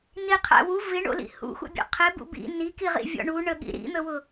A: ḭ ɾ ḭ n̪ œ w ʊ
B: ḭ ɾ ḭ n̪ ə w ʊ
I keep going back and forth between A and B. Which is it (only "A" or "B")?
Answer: B